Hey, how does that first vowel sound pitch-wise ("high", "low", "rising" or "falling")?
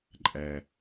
low